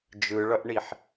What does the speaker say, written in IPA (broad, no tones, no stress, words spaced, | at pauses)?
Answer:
d͡ʒɯɭʌʔɳiħ